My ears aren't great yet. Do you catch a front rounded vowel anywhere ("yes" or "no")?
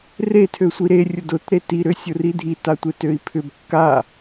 yes